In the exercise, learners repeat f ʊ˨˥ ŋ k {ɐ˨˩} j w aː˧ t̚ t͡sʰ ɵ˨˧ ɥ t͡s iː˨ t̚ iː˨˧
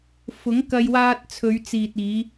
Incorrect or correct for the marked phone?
incorrect: ɐ˧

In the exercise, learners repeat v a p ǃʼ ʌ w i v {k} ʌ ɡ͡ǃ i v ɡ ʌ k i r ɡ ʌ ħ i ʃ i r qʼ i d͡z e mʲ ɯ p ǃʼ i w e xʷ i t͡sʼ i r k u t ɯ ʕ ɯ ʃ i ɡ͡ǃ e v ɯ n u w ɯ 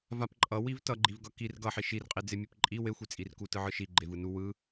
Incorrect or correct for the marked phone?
incorrect: t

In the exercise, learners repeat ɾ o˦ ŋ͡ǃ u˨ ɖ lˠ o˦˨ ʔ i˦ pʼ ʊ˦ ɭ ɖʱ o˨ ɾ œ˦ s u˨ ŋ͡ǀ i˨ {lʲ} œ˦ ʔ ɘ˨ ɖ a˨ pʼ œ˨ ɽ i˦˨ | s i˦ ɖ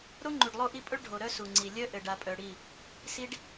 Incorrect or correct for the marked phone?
correct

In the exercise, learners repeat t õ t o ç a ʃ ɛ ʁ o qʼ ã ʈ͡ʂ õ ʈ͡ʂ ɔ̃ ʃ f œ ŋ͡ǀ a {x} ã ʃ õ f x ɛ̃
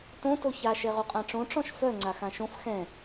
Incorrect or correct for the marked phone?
correct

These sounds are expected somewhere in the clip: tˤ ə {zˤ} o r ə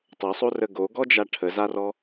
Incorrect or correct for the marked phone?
incorrect: sˤ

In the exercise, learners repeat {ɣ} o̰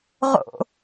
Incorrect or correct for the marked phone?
incorrect: ʁ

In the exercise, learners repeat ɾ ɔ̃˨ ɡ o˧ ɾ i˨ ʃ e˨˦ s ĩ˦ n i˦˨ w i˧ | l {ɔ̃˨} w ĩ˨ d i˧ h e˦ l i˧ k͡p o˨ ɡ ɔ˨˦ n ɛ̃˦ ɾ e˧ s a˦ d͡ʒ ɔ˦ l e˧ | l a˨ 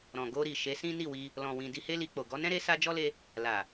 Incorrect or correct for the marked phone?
correct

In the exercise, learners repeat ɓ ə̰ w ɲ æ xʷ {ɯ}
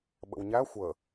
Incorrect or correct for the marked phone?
incorrect: ə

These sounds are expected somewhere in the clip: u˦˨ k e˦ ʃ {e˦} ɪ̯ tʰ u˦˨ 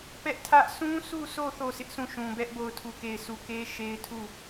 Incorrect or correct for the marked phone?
correct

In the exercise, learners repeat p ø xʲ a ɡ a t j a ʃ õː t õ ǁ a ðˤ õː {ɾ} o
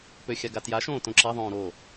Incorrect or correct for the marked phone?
correct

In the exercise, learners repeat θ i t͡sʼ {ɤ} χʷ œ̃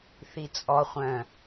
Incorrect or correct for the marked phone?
incorrect: ɔ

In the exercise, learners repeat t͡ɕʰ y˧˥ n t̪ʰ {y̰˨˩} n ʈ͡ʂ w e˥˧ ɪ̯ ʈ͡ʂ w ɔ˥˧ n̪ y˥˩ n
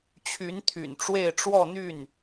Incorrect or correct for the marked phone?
correct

